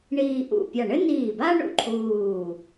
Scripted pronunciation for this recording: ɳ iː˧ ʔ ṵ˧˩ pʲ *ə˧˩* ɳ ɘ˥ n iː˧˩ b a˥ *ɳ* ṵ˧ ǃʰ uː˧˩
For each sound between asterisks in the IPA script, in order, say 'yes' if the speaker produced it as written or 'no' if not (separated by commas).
no, yes